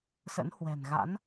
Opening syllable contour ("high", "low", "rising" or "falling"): rising